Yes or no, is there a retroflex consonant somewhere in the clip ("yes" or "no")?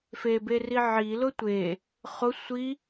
no